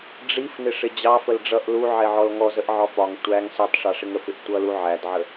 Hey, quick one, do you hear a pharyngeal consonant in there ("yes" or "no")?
yes